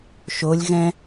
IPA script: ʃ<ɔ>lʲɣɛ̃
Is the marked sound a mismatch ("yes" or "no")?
yes